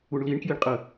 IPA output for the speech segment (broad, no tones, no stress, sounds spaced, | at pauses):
u ɳ l i ɳ k j i ɳ qʼ ə